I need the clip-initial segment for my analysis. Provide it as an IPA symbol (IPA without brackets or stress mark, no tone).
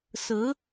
s